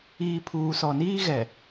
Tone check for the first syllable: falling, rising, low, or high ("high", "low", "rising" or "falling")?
low